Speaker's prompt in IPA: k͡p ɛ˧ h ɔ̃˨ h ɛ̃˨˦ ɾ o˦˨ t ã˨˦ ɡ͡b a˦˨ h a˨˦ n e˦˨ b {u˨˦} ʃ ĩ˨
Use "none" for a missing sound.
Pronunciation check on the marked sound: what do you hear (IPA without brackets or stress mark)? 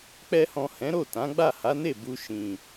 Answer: u˧